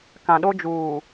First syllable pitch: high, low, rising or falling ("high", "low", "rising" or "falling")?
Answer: low